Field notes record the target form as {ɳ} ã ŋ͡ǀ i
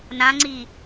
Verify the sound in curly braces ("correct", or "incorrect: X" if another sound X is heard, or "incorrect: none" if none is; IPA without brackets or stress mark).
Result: incorrect: n